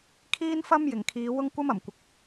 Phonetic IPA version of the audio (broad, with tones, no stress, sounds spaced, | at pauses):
kʰ iː˥ n f ɐ˥ m j ɪ˨˩ ŋ kʰ iː˨˧ w ʊ˥ ŋ kʷ ɐ˥ m ɐ˨˩ m kʷ ɪ˨˥ k̚